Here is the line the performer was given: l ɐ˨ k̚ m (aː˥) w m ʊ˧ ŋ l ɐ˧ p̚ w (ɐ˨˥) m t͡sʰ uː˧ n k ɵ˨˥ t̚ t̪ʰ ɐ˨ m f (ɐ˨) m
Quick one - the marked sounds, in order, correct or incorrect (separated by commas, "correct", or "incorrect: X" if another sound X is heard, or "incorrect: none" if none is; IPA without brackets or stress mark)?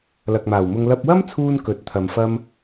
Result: incorrect: aː˨˩, incorrect: ɐ˥, incorrect: ɐ˥